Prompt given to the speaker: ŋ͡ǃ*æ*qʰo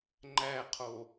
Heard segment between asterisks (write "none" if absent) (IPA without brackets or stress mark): æ